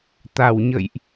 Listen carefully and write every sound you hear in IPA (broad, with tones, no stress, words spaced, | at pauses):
t̪a˧˩wɲə̰˧˨jʔ